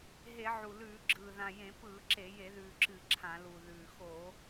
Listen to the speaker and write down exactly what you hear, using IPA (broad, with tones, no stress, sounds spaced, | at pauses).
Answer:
ɦ e˧˩˧ ʕ u˨˩ l ʉː˧˩˧ ɡ͡ǁ ɯː˨˩ ð ã˨˩ j ẽ˧˩˧ p ɯː˧˩˧ ǁ e˧˩˧ j e˧˩˧ ð ʉː˨˩ ǁ ɨ˧˩˧ ǁʰ ã˧˩˧ l u˨˩ ð ʉː˨˩ x o˧˩˧